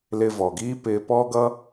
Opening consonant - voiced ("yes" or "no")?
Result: yes